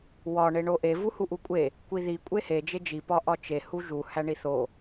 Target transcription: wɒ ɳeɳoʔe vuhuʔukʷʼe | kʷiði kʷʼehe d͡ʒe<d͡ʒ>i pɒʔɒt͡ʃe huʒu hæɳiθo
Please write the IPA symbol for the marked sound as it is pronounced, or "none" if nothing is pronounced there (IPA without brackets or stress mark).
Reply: d͡ʒ